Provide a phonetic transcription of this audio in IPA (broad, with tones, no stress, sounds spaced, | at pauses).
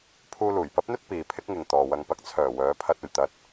pʰ uː˧ l uː˨˩ j p ɐ˥ p̚ n̪ ɵ˥ t̚ p iː˨ pʰ ɪ˥ k̚ ŋ ɪ˨ ŋ t̪ ɔː˨ w ɐ˧ ŋ p ɐ˧ k̚ t͡sʰ œː˨˩ w œː˨˥ pʰ ɐ˧ t̚ ɵ˨˩ ɥ t̪ ɐ˨˥ t̚